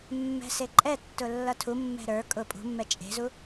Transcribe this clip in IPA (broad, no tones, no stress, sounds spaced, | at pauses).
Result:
mː ɛ̤ s e ǃʼ ɛ tː ʊ lː ʌ tʰ u mː ɛ̤ ɾ ə˞ kʼ ʊ pʼ ṳ mː ɛ t͡ʃʼ e̤ z u